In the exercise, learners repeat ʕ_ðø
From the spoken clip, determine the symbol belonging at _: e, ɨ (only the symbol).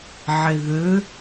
e